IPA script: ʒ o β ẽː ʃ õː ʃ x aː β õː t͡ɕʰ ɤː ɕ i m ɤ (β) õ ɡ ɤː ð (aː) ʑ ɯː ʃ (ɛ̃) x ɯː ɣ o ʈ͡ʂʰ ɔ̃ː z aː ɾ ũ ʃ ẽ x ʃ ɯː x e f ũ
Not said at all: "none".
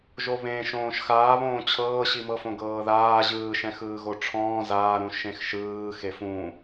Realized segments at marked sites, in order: f, aː, ɛ̃

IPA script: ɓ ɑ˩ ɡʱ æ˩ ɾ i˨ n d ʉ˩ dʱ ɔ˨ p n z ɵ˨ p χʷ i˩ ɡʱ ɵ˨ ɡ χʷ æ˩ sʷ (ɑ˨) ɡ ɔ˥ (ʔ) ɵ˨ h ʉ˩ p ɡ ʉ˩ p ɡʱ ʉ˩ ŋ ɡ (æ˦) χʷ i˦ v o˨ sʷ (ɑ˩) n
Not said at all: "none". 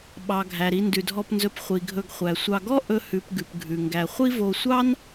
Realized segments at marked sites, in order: ɑ˨, ʔ, æ˩, ɑ˥

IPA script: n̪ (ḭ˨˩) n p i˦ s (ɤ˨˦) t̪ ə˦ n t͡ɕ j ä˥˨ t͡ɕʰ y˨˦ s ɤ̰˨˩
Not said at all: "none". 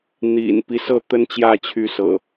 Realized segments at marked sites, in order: ḭ˨˩, ɤ˥˨

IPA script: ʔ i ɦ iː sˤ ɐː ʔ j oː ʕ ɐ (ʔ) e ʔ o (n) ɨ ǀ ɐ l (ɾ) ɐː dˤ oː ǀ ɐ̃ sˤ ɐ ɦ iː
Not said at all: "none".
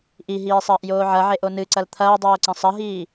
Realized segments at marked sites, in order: ʕ, n, t̪ʰ

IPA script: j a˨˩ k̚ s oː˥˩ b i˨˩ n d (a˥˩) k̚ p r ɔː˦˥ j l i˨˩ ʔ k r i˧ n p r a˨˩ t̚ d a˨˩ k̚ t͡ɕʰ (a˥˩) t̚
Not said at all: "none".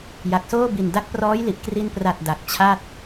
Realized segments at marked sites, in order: a˦˥, a˥˩

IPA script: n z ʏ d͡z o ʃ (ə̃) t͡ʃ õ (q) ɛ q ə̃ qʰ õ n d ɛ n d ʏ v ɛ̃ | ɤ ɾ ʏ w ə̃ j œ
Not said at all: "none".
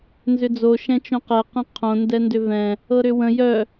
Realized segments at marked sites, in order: ɛ̃, q

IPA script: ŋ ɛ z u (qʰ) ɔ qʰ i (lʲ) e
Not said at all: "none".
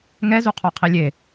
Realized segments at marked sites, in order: qʰ, lʲ

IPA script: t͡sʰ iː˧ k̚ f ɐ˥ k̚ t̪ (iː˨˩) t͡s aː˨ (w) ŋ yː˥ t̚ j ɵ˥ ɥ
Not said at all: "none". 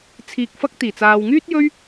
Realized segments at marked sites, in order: iː˨˩, w

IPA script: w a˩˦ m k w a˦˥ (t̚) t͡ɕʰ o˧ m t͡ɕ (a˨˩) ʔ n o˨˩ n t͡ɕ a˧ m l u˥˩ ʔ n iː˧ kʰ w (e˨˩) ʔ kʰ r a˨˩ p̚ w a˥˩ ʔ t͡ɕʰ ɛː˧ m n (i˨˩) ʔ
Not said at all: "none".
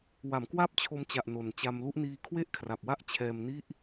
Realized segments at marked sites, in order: p̚, a˨˩, e˥˩, i˥˩

